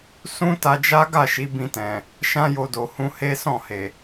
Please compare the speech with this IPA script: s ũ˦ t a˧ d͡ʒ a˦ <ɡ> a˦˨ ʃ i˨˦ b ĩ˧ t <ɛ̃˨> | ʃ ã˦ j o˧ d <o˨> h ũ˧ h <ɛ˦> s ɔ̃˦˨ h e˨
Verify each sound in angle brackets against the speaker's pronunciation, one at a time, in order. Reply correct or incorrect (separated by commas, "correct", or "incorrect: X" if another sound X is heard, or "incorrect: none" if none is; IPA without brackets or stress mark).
correct, correct, correct, incorrect: e˦